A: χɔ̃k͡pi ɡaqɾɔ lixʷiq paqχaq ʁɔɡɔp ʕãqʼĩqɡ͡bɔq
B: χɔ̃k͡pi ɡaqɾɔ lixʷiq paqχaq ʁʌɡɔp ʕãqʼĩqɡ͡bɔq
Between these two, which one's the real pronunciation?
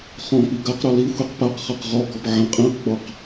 A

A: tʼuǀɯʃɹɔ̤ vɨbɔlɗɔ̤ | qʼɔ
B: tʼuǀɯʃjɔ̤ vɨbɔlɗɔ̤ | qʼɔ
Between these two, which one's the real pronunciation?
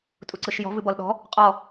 B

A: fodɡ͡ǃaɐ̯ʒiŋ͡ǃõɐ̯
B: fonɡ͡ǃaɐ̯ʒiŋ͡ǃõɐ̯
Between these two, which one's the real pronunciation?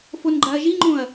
B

